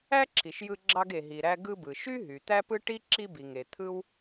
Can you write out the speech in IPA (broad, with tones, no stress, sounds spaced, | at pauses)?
æ˥ ǁʰ i˩ ʃ j ɯ˧ ɡ͡ǁ ɑ˧ ɡ e˩ ɦ i˩ ɾ æ˧ ɡ ɯ˧ b ɯ˩ ʃ y˥ ɦ y˩ t̪ æ˥ p ɯ˥ ʈ i˥ ǁ i˧ b i˩ ŋ e˩ t̪ʰ ɯ˥ w